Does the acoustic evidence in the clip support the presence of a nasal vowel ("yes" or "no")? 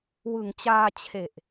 no